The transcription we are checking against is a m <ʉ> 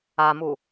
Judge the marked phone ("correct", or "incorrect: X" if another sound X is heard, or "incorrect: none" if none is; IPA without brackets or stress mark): incorrect: u